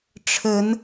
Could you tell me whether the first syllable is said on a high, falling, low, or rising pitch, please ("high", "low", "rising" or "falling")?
rising